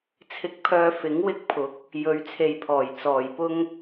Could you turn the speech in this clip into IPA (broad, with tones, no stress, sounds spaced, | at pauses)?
t͡sʰ ɪ˧ k̚ pʰ œː˧ f ɪ˨˥ ŋ w ɪ˥ k̚ pʰ ʊ˨˥ k̚ | j ɵ˨˧ ɥ t͡sʰ e˨ j pʰ ɔː˨˩ j t͡s ɔː˨˩ j p ʊ˥ ŋ